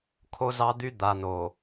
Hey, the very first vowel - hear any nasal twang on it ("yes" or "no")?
no